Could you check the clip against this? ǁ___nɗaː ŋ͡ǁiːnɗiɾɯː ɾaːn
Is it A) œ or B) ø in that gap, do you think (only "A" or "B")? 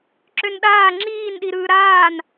B